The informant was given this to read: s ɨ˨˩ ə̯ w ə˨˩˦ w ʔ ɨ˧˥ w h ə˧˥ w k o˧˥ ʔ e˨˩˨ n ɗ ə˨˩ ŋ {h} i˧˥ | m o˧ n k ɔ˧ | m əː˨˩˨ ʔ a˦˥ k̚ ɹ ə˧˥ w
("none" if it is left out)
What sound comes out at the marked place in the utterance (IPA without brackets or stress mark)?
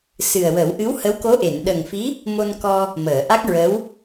f